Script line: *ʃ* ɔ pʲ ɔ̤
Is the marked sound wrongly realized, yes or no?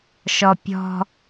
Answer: no